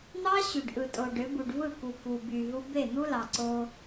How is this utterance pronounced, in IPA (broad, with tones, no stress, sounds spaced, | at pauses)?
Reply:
n̪ ɑ˦ ɕ y˨ ɖ ʔ ɯ˨ tʼ o˨ ɖ ø˨˦ b u˨ ɖ v ɯ˦˨ k u˨ k u˨ b y˨ ɦ u˦ b e˦˨ n̪ u˦ l ɑ˨ ǀ o˦